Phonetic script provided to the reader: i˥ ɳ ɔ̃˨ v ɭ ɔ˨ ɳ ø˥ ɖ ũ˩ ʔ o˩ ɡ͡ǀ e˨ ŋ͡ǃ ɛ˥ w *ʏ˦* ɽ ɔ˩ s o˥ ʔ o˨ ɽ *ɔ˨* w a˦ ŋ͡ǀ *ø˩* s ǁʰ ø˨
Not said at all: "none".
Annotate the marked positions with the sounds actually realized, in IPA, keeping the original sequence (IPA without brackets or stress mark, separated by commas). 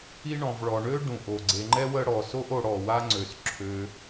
ə˦, ɔ˩, ø˩